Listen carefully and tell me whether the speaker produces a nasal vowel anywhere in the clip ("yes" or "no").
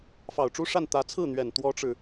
no